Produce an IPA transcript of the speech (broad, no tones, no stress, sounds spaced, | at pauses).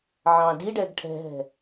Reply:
ʕ ɑ̃ d i ɖ ɛ ɡ ʈʰ ɛ̤ ɦ ɛ̤